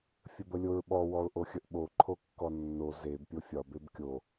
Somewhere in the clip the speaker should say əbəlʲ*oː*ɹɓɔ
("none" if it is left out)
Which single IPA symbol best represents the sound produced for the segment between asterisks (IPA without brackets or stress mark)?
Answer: o